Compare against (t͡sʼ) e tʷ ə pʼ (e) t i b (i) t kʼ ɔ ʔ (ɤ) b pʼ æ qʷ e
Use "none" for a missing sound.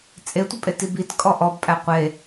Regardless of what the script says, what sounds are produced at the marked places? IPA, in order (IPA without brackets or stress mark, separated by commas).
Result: t͡sʼ, e, i, ɔ